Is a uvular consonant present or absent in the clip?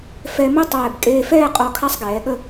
present